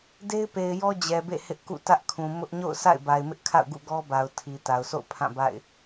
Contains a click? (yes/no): no